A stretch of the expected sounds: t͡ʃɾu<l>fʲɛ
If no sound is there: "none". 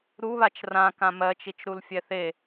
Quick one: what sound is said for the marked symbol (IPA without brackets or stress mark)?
l